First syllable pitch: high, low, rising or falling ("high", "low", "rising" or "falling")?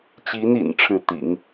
rising